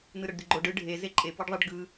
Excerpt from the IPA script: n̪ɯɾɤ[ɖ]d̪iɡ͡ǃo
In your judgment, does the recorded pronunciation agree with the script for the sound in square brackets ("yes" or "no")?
yes